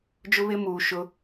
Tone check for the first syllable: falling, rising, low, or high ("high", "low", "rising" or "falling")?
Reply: high